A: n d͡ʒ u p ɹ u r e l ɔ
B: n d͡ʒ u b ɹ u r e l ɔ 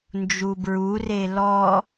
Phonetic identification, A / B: B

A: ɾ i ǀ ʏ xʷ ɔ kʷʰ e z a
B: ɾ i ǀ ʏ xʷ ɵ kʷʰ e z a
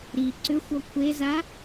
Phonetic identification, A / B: A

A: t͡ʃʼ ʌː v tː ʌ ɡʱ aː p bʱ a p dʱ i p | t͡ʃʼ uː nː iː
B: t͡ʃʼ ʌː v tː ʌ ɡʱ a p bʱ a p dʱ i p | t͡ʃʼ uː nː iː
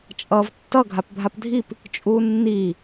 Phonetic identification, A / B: B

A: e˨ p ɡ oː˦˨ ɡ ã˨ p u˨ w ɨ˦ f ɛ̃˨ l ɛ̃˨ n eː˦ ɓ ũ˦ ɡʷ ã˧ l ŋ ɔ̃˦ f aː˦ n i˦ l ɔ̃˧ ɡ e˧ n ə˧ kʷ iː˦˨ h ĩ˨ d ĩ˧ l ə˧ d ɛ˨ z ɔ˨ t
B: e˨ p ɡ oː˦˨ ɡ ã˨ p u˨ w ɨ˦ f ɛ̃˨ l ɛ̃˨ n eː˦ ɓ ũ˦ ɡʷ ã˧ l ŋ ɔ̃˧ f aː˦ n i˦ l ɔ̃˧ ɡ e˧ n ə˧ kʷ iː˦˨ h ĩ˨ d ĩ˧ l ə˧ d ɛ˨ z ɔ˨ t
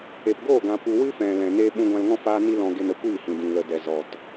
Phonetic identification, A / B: A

